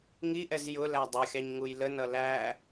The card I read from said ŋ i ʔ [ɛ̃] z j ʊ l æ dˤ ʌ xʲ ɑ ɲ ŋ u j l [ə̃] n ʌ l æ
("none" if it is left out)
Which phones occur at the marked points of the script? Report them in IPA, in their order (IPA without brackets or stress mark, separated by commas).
ɛ, ə